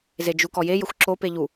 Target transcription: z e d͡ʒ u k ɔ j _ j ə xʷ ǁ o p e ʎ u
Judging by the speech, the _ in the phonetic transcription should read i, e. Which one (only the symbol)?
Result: e